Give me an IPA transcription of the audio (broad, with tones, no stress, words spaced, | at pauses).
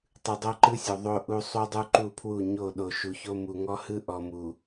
tˤɯ˨dˤo˦ǃɯ˦sʲo˨ ðˤo˦ ʔu˦ sˤu˦dˤu˦ǃu˦˨pʰwu˦˨ ɲo˦˨ ɗo˨ʃu˨ço˦ mu˨ŋɔ˦hɯ˦ ʔɔ˨mu˨